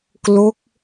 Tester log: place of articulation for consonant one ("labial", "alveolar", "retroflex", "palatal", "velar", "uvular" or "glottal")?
velar